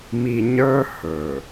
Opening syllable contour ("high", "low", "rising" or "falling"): low